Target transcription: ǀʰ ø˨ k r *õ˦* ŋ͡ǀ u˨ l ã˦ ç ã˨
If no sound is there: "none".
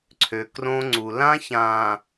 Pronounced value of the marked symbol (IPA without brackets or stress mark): õ˦